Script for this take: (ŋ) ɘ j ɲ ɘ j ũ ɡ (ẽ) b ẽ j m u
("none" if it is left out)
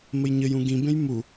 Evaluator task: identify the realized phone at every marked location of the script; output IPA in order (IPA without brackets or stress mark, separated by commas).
m, ĩ